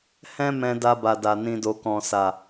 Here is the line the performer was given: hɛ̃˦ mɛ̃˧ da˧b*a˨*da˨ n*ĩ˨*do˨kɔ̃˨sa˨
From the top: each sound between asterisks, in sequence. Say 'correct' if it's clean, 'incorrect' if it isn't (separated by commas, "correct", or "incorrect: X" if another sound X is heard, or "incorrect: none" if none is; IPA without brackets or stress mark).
correct, correct